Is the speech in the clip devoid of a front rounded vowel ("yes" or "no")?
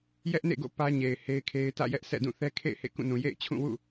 yes